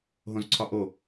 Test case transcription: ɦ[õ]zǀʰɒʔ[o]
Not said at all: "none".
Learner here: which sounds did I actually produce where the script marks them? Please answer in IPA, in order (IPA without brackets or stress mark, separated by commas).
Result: õ, o